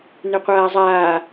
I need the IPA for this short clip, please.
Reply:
n ʏ qʷ aː zˤ aː

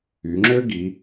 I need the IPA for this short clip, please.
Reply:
y˩˧ ŋ͡ǁ ø˥ ɡ i˩˧

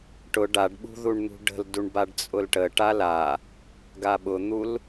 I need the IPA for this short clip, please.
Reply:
ʈ ʊ ɖ a ɖ ɓ ṳ ð u ɳ n̪ ṳ ɖ ə̤ l d u ɳ b a ɖ t͡sʼ ʊ l ʈ ə ʈ a l a | ɡ a ɓ ʊ n̪ u l

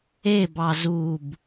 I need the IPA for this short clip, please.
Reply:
e b ɑ z u b

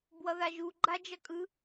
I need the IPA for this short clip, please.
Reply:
b w ʌ ð a ʒ u ɡ͡ǃ a d͡ʒ ʌ kʼ ɯ

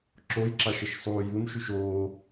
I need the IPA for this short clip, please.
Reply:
ǁ o j ǁ a ʃ ə ʃ sˤ uː j u n ʃ y ʃ oː

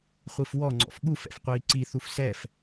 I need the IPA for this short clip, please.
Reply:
χʷ i f w ɔ ŋ͡ǀ ɔ̰ f ɠ u f ɛ̰ f qʷ iː ǀ i θ u f s ɛ f

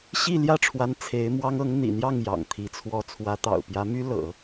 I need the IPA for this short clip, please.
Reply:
ɕ i˥˧ l j ä˥˩ ʈ͡ʂʰ w a˧˥ n t͡sʰ e˧˥ ɪ̯ m w ɑ˥ ŋ ɤ˧˥ ŋ n̪ ḭ˨˩ n̪ j ɑ˥˩ ŋ j ɑ̰˨˩ ŋ t̪ʰ i˧˥ t͡sʰ w ɔ˥ t͡sʰ w ä˧˥ t̪ ɑ̰˨˩ ʊ̯ p j ä˧˥ m y˥ l ɤ̰˨˩˦

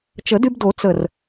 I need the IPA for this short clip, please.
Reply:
t͡ʃ ə˨˩˦ d y˧ b d o˨˩˦ t͡s ə˧˩ r

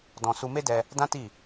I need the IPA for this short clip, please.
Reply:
d ɔ̃˧ s u˧ m e˦ d ɛ˧ | d ã˦ t i˦˨

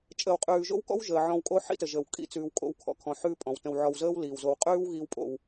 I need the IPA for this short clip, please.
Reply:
t͡ʃʼ əː˨ w qʼ ʉː˨ ʒ o̰˦ w k ɔ̰˦ w ʒ əː˨ ʕ ɔ̃˧ w kʼ o˦ ħ ḭ˦ t ə˨ ʒ əː˨ w kʼ ḭ˧ t͡s ʉː˧ w kʼ o̰˦ w kʰ ɔ̰˧ kʰ ɔ̃˧ ħ ʉː˦ pʼ ɔ̃˨ w t ə̃˧ w ʕ ɔ˨ w z əː˦ w l iː˨ w z o˧ w qʼ ʉː˦ w ɣ iː˧ w pʼ o̰˧ w

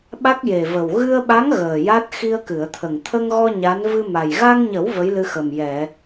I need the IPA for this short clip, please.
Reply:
ɓ a˦˥ k̚ j e˨˩ v ə˨˩ w ɣ ɨ˧ ə̯ ɓ a˧˥ ŋ ɣ əː˨˩ j a˦˥ t̚ x i˧ ə̯ k ɨ˨˩˨ ə̯ t̪ʰ ə˨˩ ŋ t̪ʰ ə˧ ŋ ɣ ɔ˧ ɲ a˧˥ n v ɨ˧ m a˨˩ j ɣ a˧ ŋ ɲ ə˨˩˦ w v ə˧˥ j l ɨ˧ x ə˨˩ m j ɛ˨˩˨

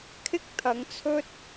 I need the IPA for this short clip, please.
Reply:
kʰ ɪ˥ k̚ t̪ʰ ɐ˨˧ ŋ t͡sʰ ɵ˥ t̚

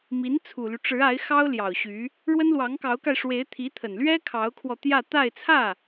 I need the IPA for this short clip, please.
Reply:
m i˧˥ n t͡sʰ u˨˩ l y˦ ʈ͡ʂ ɻ̩˧˥ a˧˥ ɪ̯ x ɑ˥ ʊ̯ l j ɑ˨˩ ʊ̯ ɕ y˧˥ | ɻ w ə˥ n l w ɑ˧˥ ŋ k ɑ˧˥ ʊ̯ k a˧ ɪ̯ ʂ w e˧˥ ɪ̯ t̪ʰ i˧˥ t̪ʰ ə˨˩ n l ɥ ɛ˥ kʰ ɑ˧˥ ʊ̯ kʰ w ɔ˧ t̪ j ä˥˧ t̪ a˥˧ ɪ̯ t͡sʰ ä˥˩

